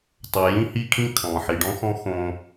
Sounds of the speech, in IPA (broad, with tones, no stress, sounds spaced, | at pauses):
tˤ o˨ j ĩ˦ h i˦ kʰ ĩ˦ kʰ ɔ̃˨ ħ i˨ ɖ ɔ̃˦ x ɔ̃˦ x õ˦